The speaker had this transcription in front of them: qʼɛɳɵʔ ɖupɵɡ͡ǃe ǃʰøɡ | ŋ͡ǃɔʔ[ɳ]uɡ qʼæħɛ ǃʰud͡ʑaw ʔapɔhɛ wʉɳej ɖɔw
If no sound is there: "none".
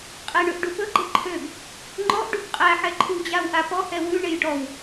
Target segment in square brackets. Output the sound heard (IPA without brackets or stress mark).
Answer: ɖ